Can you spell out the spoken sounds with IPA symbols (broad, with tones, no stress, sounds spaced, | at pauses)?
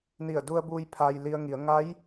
n i˧˩ ə̯ d u˧ ə̯ b uː˧ j pʰ a˧ j l i˧ ə̯ ŋ i˩˧ ə̯ ŋ a˧˥ j